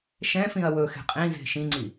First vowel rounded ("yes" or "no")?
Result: no